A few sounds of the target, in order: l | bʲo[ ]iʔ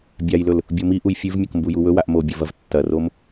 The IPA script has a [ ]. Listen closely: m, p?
m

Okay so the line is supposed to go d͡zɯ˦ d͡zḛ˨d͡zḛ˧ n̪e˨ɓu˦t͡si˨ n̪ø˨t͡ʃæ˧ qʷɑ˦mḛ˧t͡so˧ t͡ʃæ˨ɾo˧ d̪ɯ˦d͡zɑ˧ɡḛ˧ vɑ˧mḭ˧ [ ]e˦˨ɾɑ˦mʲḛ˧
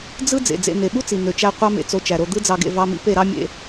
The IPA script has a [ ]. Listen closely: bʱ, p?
p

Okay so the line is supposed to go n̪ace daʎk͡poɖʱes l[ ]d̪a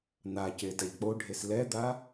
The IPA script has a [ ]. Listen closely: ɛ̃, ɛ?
ɛ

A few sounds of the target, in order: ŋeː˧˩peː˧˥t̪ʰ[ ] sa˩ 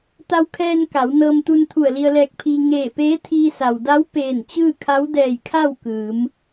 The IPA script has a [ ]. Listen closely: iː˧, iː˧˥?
iː˧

